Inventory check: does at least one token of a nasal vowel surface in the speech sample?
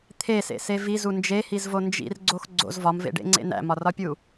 no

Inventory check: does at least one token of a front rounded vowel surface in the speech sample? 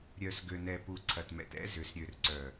yes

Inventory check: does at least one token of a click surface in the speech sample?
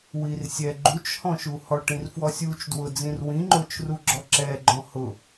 yes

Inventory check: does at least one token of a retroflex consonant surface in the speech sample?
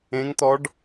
yes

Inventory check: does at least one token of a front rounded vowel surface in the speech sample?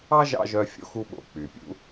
yes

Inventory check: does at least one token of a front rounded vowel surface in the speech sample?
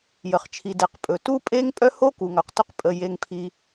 yes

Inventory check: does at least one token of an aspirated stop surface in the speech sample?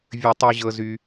no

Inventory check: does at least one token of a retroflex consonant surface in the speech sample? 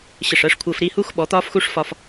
yes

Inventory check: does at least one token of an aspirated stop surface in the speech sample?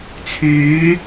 yes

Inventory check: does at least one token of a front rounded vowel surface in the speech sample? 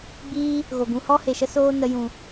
no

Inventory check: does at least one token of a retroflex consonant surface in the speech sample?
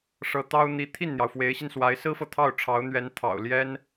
yes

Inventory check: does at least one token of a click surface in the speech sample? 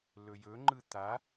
yes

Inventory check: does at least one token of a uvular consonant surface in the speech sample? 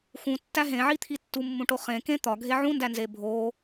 yes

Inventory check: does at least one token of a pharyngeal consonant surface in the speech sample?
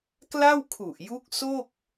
no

